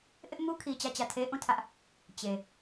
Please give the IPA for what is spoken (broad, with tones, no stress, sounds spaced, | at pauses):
ʔ ɪ˦ ʔ m u˦ kʰ i˨ t͡ɕ ä˦˨ t͡ɕ ä˦˨ tʰ e˦ ʔ ũ˦˨ tʰ ä˦ ʔ | t͡ɕ e˨